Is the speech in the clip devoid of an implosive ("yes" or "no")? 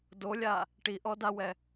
yes